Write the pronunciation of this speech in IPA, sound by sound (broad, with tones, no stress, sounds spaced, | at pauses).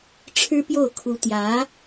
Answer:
ʈ͡ʂʰ ɻ̩˥ p j o˥˩ ʊ̯ kʰ u˧˥ t̪ j ä˧˥